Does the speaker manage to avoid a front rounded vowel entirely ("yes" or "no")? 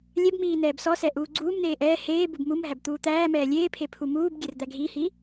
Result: yes